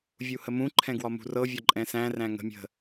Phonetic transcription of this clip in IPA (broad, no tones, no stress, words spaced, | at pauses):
vʲuhəmũǃʰɛ̃ ɡwɒmṳrɤvʲɒ ǃʼɛ̃sæ̃ ræ̃ŋə̤ mʲə̤